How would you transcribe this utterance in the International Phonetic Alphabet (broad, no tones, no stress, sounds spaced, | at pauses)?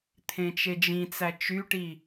t̪ʰ ẽ t͡ʃ e d͡ʒ ĩ t͡s æ t͡ʃ y ʈ i